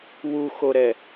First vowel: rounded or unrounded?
rounded